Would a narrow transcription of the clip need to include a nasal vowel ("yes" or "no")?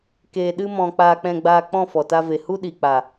yes